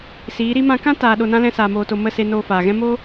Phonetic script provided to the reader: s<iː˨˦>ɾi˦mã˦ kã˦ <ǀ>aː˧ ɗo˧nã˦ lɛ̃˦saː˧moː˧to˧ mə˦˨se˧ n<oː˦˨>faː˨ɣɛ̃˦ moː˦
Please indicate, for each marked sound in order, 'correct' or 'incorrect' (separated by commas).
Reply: correct, incorrect, incorrect